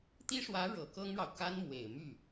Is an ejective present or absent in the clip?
absent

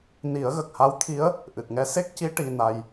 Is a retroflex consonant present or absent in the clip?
present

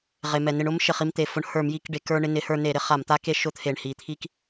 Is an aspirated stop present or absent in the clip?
present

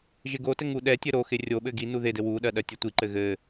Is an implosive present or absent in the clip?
present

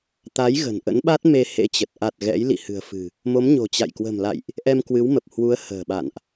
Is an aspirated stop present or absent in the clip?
absent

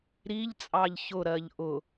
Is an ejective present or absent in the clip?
present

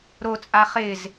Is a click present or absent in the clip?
absent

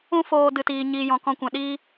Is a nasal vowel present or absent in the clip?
present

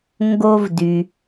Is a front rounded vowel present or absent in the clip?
present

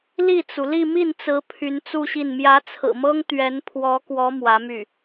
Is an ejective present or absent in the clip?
absent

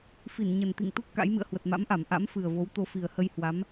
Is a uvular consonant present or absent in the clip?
absent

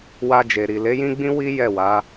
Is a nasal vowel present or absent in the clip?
present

